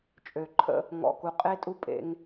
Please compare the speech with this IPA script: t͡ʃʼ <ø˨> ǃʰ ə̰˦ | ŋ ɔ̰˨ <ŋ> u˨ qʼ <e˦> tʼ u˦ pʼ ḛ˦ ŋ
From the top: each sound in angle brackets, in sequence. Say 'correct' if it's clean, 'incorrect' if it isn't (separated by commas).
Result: correct, incorrect, correct